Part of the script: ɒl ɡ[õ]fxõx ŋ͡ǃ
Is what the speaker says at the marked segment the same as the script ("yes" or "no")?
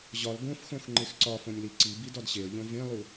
yes